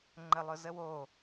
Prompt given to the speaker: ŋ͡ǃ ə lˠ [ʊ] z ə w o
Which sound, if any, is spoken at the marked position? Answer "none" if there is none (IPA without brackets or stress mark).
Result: ʊ